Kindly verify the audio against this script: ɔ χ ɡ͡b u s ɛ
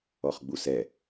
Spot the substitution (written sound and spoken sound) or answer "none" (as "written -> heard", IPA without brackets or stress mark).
none